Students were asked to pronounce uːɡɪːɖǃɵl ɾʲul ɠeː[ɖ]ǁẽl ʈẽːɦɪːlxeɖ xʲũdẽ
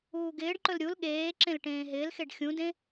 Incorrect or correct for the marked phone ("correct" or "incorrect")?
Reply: incorrect